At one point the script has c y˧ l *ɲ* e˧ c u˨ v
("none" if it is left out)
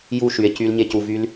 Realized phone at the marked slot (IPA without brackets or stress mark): ɲ